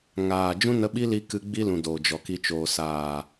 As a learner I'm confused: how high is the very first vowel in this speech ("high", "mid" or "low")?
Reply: low